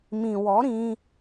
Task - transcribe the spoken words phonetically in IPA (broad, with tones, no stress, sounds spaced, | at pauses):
m ĩ˨ w ɔ˨˦ ɾ ĩ˧